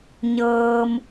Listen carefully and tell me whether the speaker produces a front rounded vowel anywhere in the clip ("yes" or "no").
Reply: no